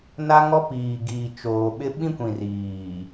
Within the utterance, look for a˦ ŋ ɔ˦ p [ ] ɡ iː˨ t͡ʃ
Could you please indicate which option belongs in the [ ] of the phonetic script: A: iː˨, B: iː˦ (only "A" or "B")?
A